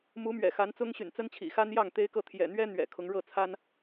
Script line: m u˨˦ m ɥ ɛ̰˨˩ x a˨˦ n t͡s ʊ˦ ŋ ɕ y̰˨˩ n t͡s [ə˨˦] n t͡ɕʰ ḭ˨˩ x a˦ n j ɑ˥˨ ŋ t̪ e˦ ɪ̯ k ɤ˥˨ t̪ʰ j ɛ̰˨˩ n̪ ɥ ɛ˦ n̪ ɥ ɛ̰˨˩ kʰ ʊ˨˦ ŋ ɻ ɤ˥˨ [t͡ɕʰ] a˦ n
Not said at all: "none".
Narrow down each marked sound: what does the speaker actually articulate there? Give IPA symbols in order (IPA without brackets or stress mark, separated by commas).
ə˦, t͡sʰ